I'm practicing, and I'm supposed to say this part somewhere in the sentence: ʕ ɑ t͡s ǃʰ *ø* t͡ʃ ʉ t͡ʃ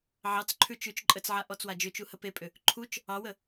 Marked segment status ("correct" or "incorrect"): incorrect